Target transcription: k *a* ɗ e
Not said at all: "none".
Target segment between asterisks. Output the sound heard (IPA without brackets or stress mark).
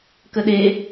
ə